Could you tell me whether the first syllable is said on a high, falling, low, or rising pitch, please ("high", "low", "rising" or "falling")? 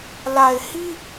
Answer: low